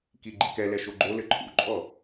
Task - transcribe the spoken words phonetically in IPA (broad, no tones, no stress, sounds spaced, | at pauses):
k i ɡ͡ǃ i k ɛ l ɛ ʃ o ɡ͡ǃ o l ɘ ǃʰ ṵ ǃʼ ɔ